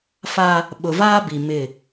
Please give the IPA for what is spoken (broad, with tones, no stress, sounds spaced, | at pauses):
f a˦ | ɓ ʊ˨ v aː˦ b i˨ m ɪ˦˨